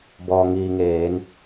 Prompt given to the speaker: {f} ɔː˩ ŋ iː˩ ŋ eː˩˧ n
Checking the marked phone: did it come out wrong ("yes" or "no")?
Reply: yes